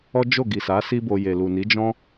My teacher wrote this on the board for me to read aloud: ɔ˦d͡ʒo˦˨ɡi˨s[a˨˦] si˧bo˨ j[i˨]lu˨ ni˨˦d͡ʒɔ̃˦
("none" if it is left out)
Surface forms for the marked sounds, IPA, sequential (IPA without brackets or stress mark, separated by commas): a˨˦, e˨